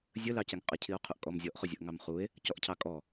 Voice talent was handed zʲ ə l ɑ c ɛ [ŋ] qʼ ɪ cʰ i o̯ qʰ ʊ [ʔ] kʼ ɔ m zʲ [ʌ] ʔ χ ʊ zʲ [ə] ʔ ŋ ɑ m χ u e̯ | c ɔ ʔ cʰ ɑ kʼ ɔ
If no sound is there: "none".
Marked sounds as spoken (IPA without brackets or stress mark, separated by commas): ŋ, ʔ, ɔ, ə